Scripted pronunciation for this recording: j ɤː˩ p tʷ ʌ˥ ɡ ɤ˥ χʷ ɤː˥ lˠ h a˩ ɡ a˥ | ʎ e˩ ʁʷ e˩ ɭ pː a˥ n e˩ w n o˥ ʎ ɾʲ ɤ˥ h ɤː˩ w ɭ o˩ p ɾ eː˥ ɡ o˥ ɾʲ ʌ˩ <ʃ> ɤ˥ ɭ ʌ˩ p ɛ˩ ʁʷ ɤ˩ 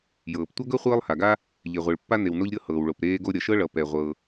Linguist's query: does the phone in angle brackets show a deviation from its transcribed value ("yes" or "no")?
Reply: no